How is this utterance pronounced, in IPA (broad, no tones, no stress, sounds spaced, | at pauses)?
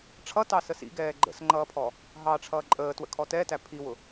ʈ͡ʂʰ ʌ t ɑ s ə s ḭ ɡ ɛː ɡ͡ǃ ə̰ s ŋ͡ǃ ʌː pʰ ɔ | ɦ ɑ ʈ͡ʂʰ ʌː ǃʼ əː t w ə̰ kʰ ɔ t ɛ t æ pʰ i w ʊ